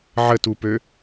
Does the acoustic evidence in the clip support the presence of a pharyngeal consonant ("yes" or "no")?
yes